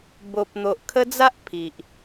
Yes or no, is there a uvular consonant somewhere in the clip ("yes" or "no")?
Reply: no